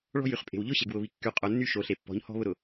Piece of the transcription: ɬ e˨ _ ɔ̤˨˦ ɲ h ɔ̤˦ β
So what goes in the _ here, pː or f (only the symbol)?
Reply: pː